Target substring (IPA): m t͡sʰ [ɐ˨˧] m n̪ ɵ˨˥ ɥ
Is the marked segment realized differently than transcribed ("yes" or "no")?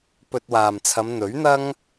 no